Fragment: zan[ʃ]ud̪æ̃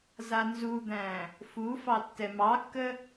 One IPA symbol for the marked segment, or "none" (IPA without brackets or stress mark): z